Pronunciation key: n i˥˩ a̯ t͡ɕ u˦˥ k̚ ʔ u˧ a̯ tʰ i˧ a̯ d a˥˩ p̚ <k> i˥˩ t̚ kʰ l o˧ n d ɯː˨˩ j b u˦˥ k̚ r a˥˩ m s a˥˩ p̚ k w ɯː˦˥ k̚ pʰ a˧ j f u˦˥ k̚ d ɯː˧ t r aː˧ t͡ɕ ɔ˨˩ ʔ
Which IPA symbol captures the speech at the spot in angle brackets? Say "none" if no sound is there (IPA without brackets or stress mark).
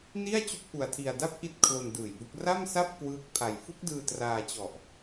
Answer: ʔ